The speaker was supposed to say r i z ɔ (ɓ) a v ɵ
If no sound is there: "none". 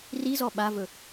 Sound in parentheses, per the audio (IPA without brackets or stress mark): ɓ